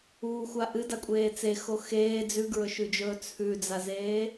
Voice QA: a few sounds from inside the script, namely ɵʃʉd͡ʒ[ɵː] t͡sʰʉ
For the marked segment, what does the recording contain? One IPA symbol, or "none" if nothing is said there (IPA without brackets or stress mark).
ɵː